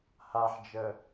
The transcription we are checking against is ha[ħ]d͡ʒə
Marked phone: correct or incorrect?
correct